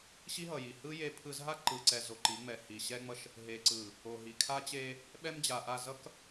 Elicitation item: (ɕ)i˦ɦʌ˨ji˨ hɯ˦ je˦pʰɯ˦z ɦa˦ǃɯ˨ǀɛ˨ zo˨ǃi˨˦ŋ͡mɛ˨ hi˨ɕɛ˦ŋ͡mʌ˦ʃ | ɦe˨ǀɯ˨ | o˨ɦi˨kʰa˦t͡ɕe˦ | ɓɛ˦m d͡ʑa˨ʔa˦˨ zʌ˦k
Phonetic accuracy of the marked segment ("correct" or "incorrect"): correct